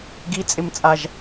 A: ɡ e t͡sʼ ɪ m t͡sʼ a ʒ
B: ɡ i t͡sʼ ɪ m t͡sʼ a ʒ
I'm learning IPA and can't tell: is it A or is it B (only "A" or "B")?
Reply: B